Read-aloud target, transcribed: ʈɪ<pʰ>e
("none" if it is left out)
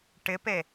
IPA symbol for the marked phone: p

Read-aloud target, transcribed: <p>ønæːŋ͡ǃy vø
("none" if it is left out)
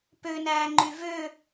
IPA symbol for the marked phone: p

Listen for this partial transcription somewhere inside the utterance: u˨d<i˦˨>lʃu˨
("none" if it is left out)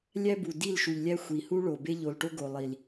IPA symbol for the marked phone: i˦˨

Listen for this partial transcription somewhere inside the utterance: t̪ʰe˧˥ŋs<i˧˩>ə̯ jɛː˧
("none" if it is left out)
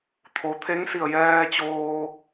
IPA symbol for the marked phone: i˧˩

